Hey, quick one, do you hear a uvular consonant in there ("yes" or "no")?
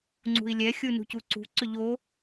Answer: no